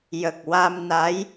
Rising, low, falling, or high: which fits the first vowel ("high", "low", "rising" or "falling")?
low